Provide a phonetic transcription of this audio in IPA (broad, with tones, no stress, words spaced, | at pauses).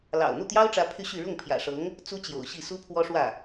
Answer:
lɑ̰˨˩ʊ̯ n̪u˥˩t̪jɑ˥ʊ̯ʈ͡ʂä˧˥ pʰy˥˧ɕy˥˧ ɻʊ˥˩ŋpʰjä̰˨˩ʂɤ˧˥ŋ | t͡su˥t͡ɕjo̰˨˩ʊ̯ɕi˥˩ su˥pʰwɔ˥ʂwä˥˩